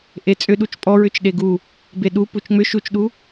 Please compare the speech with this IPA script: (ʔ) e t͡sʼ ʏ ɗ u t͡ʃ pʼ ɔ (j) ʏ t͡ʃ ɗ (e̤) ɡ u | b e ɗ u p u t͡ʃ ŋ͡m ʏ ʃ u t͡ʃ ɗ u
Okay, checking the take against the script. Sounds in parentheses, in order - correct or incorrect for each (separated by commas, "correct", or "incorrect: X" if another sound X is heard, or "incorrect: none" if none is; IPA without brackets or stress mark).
correct, incorrect: ɹ, incorrect: e